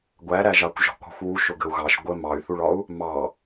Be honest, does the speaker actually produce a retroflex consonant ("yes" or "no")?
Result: yes